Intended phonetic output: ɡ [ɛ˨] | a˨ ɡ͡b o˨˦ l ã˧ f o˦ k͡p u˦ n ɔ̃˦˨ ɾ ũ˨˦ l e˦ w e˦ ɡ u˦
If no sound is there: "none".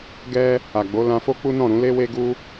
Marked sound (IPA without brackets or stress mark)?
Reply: ɛ˦